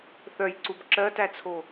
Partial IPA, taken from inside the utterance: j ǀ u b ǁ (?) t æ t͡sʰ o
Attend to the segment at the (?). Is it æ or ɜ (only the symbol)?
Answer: ɜ